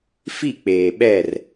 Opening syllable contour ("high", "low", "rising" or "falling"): falling